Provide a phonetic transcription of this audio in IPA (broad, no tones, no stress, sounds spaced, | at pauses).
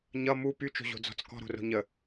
ɲ ʌ m u p y t͡ʃ o̤ ʑ o̤ d͡z ɔ̤ t͡s k ɔ̤ ɾ o̤ r o̤ ɲ ə